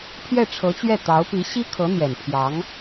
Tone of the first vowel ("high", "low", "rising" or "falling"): falling